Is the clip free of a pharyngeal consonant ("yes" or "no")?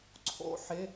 no